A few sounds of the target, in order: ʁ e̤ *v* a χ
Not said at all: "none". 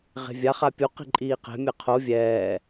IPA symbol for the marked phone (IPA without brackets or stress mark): vʲ